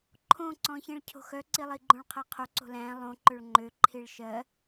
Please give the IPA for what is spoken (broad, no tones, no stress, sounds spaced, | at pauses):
ǃʰ õ ǀ ɔ̃ ç ĩ ɭ cʰ o̤ x œ ǀ i lˠ i ɡ͡ǃ õ ɭ qʰ æ qʰ o ǀ o̤ l æ̃ lˠ õ ǃ ø ɭ ŋ͡ǃ ø ǃʰ i ɭ ʃ ɜ